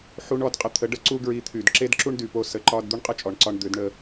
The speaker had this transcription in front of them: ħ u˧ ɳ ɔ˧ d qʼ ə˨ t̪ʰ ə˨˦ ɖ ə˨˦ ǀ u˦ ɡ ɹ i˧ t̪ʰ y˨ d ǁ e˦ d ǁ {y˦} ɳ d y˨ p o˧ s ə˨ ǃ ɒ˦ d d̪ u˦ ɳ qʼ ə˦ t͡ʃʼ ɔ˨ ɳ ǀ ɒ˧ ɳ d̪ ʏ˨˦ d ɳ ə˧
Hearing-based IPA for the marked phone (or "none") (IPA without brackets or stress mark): u˦